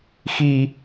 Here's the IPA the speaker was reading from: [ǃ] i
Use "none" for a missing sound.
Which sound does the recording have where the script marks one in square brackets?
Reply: x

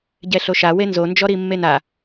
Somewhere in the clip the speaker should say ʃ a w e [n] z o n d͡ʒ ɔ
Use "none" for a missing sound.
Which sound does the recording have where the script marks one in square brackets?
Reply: n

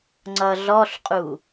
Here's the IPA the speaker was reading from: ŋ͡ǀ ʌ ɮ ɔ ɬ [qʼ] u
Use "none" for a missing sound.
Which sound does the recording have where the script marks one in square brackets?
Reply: qʼ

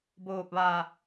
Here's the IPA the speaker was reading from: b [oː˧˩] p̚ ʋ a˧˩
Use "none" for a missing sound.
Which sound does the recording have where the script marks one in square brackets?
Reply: oː˧˩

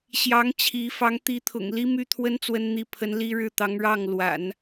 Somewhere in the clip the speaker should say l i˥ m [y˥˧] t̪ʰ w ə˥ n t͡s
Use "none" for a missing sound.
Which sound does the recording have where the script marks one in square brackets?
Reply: y˥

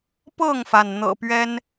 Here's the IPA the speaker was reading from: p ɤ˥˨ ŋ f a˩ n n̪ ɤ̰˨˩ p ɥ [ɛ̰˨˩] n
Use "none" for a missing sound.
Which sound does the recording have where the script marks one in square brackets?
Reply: ɛ˦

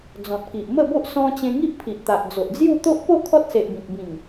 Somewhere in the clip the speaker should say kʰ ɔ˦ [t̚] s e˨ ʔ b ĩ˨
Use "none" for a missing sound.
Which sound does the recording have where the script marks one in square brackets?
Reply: t̚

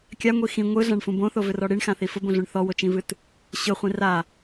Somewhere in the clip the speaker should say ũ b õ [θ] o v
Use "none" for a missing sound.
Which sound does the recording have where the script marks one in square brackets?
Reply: θ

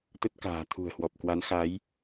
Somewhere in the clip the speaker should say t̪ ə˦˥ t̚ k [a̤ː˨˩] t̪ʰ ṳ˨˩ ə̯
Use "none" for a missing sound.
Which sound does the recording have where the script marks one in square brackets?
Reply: a̤ː˨˩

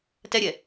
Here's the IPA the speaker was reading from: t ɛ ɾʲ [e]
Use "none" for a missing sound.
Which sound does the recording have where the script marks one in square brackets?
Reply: ɛ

